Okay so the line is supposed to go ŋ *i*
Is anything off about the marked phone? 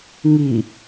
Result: no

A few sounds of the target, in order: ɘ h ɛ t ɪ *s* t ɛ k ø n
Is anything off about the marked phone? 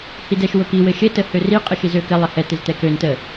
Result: yes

